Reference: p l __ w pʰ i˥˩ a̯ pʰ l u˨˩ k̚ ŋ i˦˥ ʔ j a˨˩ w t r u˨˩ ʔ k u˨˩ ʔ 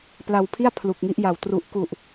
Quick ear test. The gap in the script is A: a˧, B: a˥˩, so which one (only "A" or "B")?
A